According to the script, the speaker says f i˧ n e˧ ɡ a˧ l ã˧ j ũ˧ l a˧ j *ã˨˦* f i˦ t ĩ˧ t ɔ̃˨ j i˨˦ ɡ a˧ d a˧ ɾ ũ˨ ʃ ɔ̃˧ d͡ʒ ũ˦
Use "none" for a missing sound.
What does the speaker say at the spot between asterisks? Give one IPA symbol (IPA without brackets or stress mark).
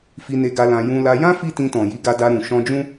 ã˦